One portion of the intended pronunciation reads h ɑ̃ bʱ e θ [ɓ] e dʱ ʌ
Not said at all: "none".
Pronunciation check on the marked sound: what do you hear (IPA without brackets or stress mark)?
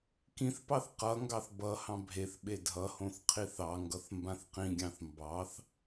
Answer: ɓ